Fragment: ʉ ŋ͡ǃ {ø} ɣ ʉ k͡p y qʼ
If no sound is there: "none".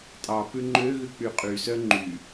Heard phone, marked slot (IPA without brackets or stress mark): ø